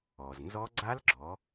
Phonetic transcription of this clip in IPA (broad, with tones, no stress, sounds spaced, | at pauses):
ɔ˩ z n z ɔ˦˥ ɡ͡ǀ a˦˥ l ɡ͡ǁ ɔ˩˧